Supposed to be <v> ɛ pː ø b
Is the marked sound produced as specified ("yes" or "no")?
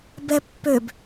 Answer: no